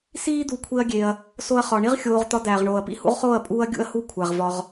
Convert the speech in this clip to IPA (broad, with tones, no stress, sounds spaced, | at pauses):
s iː˦ d̪ u˧ kʷʰ e˦ ɐ̯ ɡʲ e˧ ɐ̯ | s o˦ ɐ̯ χ ɒ˧ ɳ i˦ ʁ xʲ oː˧ ʁ t̪ ɒ˧ d̪ æː˨ ʁ ɳ oː˨ ɐ̯ p ḭ˦ h ṵ˦ ʁ χ oː˦˨ ɐ̯ pʼ uː˦ ɐ̯ ɡʲ ṵ˧ ɐ̯ h u˧ kʷʰ æ˨ ʁ v ɒ˧ ʁ